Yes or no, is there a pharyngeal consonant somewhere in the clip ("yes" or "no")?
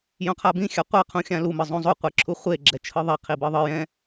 no